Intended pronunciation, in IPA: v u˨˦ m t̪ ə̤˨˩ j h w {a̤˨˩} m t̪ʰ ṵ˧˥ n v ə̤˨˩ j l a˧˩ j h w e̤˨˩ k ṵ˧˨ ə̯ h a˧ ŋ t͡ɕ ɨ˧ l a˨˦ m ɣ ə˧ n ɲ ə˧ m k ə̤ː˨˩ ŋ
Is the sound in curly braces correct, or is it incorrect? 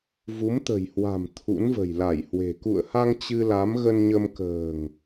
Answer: correct